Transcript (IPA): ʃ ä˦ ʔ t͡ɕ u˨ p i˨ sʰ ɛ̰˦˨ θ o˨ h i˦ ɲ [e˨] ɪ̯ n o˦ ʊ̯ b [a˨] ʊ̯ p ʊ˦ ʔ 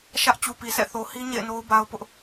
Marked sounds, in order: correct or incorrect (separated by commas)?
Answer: incorrect, incorrect